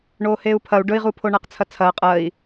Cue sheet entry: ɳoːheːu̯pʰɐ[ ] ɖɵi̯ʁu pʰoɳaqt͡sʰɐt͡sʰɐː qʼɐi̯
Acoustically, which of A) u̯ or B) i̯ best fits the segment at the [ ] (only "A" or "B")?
A